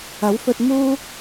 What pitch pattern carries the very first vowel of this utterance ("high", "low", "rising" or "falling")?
rising